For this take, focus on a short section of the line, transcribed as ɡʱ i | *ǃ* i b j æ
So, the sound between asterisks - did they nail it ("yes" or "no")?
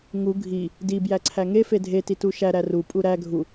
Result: no